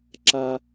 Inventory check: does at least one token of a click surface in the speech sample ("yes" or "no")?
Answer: yes